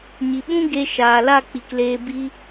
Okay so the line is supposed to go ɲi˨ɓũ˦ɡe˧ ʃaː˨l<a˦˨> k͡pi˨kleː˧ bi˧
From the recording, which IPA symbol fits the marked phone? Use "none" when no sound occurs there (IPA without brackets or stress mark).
a˦˨